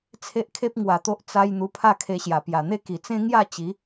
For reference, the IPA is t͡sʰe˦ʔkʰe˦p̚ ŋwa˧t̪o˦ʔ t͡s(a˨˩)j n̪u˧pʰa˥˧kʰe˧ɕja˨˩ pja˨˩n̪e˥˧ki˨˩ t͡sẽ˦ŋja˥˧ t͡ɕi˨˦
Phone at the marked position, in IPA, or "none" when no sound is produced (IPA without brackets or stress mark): a˦